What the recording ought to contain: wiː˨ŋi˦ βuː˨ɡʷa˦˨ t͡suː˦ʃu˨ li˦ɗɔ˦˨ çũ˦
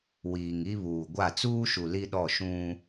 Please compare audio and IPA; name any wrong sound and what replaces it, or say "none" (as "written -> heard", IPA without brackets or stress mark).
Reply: ç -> ʃ